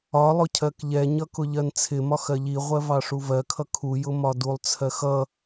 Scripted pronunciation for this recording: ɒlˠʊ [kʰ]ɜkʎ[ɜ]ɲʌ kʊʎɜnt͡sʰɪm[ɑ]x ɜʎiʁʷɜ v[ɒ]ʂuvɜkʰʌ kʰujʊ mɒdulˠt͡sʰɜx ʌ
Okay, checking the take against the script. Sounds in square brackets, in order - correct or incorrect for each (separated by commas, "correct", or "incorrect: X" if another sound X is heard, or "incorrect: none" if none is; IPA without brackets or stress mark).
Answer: incorrect: cʰ, incorrect: ɛ, incorrect: ɒ, incorrect: ɑ